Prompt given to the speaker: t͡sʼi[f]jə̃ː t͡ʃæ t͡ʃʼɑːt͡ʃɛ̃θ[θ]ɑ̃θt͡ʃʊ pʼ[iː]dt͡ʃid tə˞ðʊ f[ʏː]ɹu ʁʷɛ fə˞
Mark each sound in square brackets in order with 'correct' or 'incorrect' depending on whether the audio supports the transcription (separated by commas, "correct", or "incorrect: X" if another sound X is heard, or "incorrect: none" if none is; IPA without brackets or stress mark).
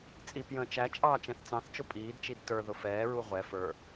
incorrect: p, incorrect: t͡s, correct, incorrect: ɛː